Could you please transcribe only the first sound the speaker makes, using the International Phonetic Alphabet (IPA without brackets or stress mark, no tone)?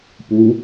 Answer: p